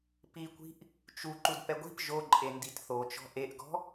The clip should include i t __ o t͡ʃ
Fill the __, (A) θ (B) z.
A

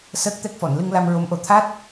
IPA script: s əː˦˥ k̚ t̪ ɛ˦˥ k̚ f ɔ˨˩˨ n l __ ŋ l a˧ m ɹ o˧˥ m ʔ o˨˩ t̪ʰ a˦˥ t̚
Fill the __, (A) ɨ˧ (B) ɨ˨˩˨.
A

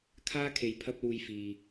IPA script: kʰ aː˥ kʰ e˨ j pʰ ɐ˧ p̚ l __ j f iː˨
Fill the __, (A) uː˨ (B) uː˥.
A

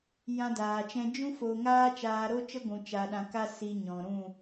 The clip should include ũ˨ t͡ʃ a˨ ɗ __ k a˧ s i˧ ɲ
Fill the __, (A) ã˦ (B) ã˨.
B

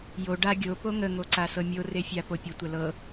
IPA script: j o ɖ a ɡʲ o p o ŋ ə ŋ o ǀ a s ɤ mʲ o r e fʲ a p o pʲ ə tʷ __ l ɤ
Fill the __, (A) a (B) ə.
B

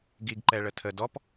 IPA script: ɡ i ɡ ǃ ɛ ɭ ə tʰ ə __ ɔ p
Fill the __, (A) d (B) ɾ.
A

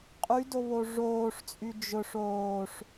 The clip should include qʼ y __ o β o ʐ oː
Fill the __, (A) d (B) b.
A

